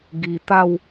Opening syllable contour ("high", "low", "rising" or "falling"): low